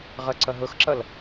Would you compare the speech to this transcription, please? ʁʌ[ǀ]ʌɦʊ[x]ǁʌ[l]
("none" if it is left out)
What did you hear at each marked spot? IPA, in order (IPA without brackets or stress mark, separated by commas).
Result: ǀ, x, l